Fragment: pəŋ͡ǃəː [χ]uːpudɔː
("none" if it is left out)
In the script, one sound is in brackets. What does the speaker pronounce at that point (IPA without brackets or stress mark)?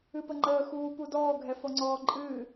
x